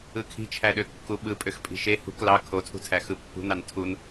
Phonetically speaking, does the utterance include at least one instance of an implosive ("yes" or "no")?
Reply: yes